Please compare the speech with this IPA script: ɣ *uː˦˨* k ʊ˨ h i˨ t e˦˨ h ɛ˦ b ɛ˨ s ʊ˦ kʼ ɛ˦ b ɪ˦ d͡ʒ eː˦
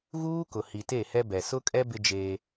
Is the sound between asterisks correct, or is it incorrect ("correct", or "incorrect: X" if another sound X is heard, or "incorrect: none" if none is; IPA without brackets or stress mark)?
incorrect: uː˦